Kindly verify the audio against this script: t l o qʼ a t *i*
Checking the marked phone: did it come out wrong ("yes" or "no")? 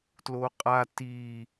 no